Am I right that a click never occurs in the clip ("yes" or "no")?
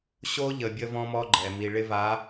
no